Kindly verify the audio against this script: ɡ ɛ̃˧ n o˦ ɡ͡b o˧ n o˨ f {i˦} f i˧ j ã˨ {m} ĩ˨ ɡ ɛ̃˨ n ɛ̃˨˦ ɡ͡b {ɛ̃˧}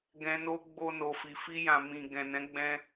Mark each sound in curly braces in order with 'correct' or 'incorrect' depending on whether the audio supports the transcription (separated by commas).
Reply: incorrect, correct, correct